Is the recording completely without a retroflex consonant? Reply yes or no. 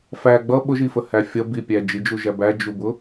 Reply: yes